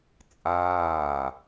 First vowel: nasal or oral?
oral